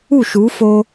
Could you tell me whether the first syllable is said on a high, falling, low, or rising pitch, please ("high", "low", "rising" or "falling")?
falling